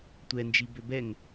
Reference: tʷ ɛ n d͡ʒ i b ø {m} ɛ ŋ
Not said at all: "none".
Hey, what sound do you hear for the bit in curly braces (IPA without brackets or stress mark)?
b